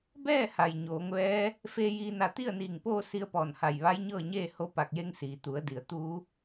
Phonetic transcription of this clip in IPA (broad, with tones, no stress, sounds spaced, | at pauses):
b ɛː˥˨ h a˩ j ɲ oː˩˧ ŋ ʋ ɛː˧˥ | f eː˧ j iː˧ n a˧˩ t̪ i˥˨ ə̯ n iː˧˩ ŋ p oː˥˨ s i˧ ə̯ p ɔː˧˩ n h a˧˩ j ʋ a˧˥ j ɲ ɤː˥˨ ɲ eː˥˨ h o˧ p a˧˩ k̚ j e˧ ŋ s iː˩ t̪ u˩˧ ə̯ d i˩ ə̯ t̪ uː˧˥